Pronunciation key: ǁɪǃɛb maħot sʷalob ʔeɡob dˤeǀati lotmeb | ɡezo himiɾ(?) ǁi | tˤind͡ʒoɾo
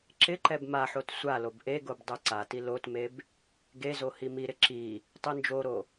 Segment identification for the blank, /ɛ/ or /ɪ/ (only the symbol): ɪ